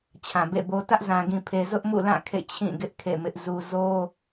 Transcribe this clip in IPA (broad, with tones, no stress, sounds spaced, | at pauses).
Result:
t͡ɕʰ ã˨ b ḛ˦˨ b o˦ t ä˦ ʔ z ã˨ ɡ ĩ˨ pʰ e˨ z ʊ˦ ʔ m ṵ˦˨ l ã˦˨ kʰ ḛ˦˨ t͡ɕʰ ĩ˦˨ ɡ ɪ˦ ʔ kʰ ḛ˦˨ m ɪ˦ ʔ z u˦ z o˦